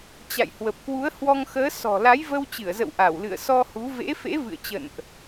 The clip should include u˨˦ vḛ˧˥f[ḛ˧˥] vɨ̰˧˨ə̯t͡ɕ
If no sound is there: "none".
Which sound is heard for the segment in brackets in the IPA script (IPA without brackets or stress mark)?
ḛ˧˥